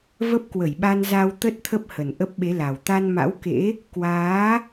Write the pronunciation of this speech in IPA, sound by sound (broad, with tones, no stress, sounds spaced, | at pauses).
v ə˦˥ p̚ k w ə˧˩ j ɓ a˧ n z a˧ w t̪ ə˦˥ t̚ t̪ʰ ə˦˥ p̚ h ə˨˩ n ʔ ə˦˥ p̚ ɓ e˨˦ l a˨˩ w t̪ a˧ n m a̰˧˥ w k ḛ˧˥ | k w aː˨˦